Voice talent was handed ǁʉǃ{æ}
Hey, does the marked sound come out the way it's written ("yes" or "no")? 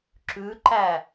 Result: yes